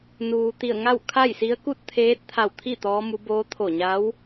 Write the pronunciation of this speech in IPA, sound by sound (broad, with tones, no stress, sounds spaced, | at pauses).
n uː˩ t̪ i˧˩ ə̯ ŋ a˥˨ w kʰ a˥˨ j s i˧˥ ə̯ k u˥˨ t̚ t̪ʰ eː˧˥ t̚ t̪ʰ a˧˩ w t̪ʰ i˥˨ t̪ ɔː˧˥ m u˧˥ b oː˧˥ t̪ʰ o˧˩ ɲ a˧˥ w